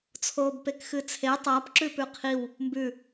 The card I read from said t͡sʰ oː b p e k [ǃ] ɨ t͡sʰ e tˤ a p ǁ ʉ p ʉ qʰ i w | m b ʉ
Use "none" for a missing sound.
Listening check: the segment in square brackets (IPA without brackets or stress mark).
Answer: x